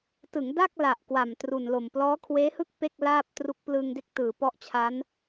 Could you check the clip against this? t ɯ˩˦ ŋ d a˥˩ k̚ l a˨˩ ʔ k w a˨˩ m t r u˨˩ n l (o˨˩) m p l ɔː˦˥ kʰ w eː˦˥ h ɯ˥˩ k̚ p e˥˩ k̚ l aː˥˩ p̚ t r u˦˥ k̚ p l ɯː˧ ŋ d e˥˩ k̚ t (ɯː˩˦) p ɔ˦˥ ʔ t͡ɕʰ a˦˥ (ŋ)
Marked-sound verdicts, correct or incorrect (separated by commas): correct, correct, incorrect